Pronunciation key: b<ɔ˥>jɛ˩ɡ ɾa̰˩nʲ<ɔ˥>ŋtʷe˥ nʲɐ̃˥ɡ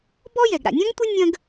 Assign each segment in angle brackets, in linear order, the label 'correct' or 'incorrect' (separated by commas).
correct, incorrect